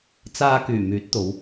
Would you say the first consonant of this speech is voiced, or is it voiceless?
voiceless